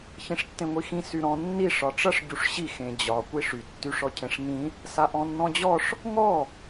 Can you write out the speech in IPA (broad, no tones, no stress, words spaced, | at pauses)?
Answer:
çĩʂtːẽŋʷixĩ syɾɔ̃ nːi ʂɒʈ͡ʂʌʂ ɟuʂɕi xẽd͡ʑɒ kʷiʂy tːyʂɔcʰẽʂŋĩ | saʔɔ̃nːɔ̃d͡ʑɔʂ | ŋɔ